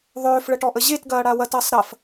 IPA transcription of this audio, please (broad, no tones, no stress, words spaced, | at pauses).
ðˤøːfɭəʈɔʔə ʑetɡɐːɽa wɐtɐːsˤ ɾɐf